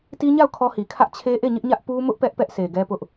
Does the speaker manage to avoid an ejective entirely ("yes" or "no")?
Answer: yes